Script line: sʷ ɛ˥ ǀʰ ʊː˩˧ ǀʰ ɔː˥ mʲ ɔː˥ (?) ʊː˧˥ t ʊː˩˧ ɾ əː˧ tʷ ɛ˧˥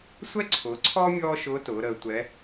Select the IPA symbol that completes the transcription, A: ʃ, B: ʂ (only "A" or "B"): A